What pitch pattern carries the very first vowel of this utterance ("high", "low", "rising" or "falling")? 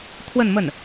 falling